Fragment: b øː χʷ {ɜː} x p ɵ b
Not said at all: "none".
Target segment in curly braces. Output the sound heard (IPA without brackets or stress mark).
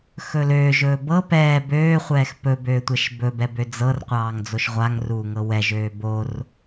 ɛː